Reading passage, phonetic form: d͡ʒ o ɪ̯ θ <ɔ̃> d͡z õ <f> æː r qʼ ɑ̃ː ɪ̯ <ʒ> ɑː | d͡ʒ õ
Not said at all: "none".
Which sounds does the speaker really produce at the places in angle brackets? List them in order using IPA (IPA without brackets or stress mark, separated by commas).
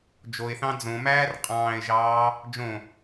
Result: ɑ̃, m, ʒ